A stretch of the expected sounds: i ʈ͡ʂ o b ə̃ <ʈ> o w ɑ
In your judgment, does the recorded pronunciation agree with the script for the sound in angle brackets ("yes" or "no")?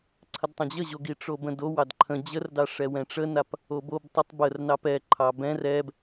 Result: no